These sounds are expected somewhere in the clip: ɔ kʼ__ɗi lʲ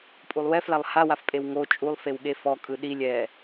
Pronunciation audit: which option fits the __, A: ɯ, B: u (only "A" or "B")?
A